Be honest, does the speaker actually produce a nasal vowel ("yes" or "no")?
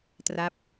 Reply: no